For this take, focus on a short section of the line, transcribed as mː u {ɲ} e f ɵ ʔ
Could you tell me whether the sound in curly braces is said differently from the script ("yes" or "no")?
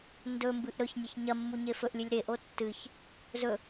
no